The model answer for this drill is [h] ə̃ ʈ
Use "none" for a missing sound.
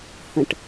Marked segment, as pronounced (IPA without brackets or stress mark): h